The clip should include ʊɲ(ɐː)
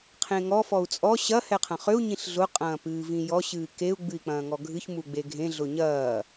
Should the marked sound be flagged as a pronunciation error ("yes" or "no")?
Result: no